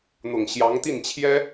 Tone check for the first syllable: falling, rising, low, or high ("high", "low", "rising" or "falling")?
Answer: low